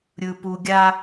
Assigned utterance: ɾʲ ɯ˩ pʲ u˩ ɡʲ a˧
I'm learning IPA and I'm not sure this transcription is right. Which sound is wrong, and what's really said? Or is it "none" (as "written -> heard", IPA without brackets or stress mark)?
pʲ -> p